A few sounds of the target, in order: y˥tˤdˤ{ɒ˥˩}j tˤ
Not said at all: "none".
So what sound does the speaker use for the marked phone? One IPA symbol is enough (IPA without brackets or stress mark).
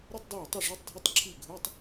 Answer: ɑ˥˩